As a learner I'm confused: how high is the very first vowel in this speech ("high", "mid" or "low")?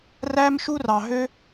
low